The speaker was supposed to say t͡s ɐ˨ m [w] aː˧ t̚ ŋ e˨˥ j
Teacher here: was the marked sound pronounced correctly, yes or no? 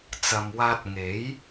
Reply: yes